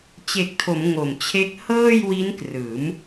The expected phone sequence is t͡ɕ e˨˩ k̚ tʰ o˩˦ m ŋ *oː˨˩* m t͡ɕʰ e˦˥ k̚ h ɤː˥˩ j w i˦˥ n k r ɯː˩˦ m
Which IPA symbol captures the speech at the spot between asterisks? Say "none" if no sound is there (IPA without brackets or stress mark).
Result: o˨˩